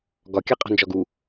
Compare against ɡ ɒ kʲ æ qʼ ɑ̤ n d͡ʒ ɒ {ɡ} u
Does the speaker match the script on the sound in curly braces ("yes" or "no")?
yes